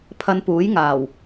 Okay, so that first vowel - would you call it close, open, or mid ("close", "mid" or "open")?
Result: open